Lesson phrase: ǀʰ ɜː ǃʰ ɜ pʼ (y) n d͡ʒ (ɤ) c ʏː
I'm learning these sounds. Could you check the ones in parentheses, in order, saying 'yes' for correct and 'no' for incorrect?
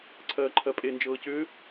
no, no

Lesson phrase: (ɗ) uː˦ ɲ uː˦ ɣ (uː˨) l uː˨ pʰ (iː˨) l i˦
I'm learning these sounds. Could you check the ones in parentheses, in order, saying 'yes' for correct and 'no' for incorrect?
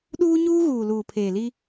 yes, yes, no

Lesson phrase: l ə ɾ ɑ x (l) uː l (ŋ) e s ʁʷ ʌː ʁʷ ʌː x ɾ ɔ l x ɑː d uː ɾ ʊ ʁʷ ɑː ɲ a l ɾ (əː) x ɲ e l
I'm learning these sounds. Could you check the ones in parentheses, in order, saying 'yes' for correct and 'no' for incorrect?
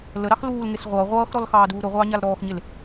yes, yes, no

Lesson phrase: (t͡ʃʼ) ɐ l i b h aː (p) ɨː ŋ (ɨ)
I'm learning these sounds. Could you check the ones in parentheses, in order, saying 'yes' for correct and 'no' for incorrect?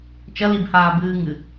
no, no, yes

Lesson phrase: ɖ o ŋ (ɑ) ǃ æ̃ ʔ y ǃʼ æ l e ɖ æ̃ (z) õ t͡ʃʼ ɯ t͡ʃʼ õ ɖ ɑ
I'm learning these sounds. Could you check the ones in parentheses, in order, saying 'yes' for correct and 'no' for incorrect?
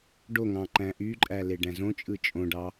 no, yes

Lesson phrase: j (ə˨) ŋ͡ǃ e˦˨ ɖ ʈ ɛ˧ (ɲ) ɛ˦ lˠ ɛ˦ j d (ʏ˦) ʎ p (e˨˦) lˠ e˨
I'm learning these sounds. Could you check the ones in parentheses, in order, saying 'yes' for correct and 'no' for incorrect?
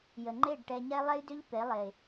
yes, yes, yes, yes

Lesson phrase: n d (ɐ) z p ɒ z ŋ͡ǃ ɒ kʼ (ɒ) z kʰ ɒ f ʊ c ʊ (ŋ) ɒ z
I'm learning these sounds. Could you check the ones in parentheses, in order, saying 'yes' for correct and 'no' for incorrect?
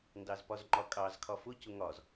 no, no, yes

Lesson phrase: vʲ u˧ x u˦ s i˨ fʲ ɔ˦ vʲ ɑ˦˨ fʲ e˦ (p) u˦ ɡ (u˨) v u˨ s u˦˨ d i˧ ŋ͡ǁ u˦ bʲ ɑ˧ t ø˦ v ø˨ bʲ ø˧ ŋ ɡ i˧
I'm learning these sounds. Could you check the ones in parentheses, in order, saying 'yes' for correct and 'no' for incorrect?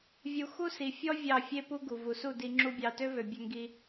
yes, yes

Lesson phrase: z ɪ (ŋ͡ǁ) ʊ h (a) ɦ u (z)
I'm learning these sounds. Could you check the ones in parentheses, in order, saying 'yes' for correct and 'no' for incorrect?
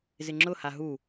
yes, yes, no

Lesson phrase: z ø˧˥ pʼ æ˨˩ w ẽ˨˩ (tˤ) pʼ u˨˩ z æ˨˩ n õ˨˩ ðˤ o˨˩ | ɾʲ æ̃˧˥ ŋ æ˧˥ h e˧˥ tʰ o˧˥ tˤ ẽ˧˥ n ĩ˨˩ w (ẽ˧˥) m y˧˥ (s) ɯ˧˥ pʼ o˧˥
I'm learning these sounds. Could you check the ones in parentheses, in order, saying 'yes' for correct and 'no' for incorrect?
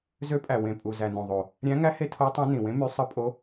no, yes, no

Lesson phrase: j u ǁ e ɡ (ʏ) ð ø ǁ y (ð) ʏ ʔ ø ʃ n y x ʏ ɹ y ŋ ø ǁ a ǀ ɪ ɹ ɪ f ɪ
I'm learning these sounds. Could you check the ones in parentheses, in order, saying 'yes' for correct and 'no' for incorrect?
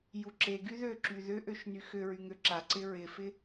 no, yes

